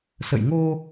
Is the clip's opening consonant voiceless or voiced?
voiceless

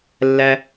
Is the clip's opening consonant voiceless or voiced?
voiced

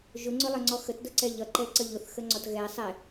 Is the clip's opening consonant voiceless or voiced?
voiced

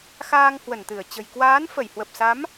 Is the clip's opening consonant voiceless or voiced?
voiceless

